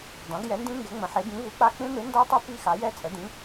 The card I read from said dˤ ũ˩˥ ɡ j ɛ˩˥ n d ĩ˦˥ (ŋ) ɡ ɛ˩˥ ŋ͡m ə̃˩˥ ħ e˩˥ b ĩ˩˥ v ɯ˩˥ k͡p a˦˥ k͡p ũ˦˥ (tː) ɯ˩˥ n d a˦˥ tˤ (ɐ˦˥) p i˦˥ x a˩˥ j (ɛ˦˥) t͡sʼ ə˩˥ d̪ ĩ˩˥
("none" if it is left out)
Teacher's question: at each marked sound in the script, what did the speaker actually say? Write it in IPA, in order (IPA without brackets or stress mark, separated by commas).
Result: ŋ, n̪, ɐ˦˥, ɛ˦˥